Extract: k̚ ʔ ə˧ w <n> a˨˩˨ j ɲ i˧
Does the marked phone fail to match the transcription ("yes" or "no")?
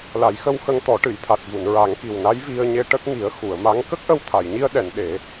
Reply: yes